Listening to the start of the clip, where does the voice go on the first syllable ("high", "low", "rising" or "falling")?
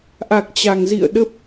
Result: low